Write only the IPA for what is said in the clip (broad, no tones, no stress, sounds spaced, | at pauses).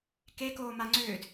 k e k oː m a ŋ͡ǀ ʏː d